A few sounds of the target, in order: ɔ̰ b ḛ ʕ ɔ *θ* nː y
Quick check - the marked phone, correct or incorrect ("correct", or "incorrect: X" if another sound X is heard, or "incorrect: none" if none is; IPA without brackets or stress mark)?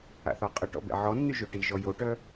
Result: incorrect: none